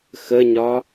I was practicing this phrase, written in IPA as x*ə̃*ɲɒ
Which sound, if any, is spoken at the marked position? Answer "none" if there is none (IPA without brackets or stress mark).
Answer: ə